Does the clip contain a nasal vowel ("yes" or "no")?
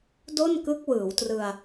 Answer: no